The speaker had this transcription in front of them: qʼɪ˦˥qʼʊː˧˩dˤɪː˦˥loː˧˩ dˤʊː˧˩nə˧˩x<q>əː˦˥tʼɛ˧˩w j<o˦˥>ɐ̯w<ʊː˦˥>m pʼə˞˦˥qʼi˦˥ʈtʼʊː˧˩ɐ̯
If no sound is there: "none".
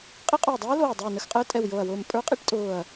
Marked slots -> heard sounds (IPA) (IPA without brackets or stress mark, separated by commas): qʼ, o˧˩, ʊː˧˩